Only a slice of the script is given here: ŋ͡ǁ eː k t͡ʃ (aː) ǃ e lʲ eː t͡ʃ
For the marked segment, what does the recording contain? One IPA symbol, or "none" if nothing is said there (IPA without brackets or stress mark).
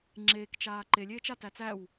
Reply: aː